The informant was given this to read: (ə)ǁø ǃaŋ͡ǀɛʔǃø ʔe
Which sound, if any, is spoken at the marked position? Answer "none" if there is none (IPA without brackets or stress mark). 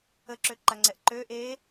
ə